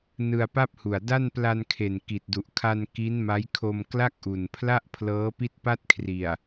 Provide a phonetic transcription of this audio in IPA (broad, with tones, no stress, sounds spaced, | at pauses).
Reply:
n ɯ˧ a̯ p a˥˩ p̚ h u˨˩ a̯ d a˥˩ n p l a˧ n kʰ e˨˩ n k i˨˩ t̚ d u˨˩ ʔ kʰ a˧ n k i˦˥ n m a˦˥ j kʰ o˧ m k l a˥˩ k̚ ʔ u˨˩ n pʰ l a˥˩ ʔ pʰ l ɤː˦˥ p i˥˩ t̚ p a˥˩ t̚ kʰ r i˨˩ a̯